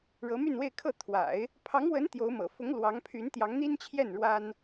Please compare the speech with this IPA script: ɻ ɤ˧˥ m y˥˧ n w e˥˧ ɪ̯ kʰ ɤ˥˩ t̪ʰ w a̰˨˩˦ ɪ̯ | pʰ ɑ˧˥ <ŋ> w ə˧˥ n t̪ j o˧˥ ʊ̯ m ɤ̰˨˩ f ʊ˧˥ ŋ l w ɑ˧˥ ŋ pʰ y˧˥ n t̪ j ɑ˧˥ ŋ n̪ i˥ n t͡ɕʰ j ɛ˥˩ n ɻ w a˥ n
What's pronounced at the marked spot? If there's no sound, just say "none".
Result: ŋ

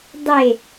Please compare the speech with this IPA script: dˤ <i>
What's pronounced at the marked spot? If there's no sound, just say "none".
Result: e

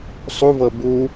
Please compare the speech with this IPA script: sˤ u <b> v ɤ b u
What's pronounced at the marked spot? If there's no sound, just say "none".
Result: none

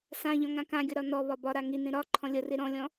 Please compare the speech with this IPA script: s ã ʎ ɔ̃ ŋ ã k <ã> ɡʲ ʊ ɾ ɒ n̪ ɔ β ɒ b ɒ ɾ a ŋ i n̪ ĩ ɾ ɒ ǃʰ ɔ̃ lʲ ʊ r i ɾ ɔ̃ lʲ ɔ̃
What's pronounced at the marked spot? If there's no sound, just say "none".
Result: ã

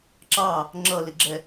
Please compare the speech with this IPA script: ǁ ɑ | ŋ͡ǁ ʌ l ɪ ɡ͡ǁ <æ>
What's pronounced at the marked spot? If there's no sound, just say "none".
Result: ɛ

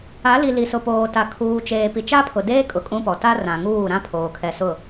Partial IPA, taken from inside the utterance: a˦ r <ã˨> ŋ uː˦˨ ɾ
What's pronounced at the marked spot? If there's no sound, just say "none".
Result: ã˨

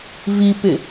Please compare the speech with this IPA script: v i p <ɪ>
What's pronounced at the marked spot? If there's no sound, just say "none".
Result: ɪ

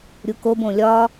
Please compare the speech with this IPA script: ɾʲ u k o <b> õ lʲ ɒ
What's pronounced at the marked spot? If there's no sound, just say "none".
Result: b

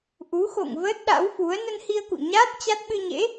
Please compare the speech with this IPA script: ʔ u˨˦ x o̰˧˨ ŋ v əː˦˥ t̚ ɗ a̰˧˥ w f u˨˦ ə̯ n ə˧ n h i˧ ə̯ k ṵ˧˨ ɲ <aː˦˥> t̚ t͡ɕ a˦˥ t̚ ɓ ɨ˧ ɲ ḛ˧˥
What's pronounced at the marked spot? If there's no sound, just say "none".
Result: aː˦˥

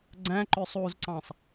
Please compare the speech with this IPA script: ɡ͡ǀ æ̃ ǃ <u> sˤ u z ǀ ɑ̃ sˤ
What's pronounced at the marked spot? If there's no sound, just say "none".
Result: ø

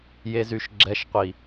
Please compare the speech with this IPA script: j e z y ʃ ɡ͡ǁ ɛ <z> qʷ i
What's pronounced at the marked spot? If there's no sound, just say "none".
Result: ʃ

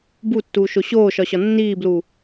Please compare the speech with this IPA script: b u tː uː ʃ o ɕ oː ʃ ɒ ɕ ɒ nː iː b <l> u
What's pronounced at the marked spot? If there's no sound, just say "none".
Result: l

